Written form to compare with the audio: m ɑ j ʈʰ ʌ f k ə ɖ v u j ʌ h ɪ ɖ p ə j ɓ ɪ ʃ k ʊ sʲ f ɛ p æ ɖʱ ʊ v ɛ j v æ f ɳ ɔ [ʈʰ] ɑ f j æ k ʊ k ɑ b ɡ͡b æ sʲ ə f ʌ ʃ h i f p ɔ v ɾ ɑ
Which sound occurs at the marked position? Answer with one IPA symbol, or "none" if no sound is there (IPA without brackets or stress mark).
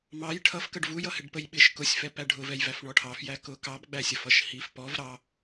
ʈʰ